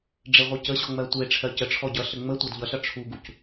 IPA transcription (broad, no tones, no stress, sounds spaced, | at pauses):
ɖ͡ʐ e ʁʷ ɯ c ə ɕ ɔ ŋ͡m ɜ tʷ e ʈ͡ʂʰ ɜ c ə ʈ͡ʂʰ ɔ ɟ ʌ ɬ ə ŋ͡m ə tʷ ɜ d ʎ ʌ ɬ ʌ ʈ͡ʂʰ u ɡ u c